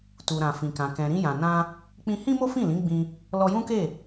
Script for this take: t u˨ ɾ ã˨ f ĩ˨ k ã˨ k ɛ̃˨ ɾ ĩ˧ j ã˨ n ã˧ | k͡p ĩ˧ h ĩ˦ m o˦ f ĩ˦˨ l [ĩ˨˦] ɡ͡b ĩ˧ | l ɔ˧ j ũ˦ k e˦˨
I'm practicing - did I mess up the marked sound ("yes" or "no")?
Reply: no